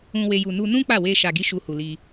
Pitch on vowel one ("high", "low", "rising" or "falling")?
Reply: low